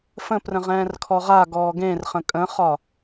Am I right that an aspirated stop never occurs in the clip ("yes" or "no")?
no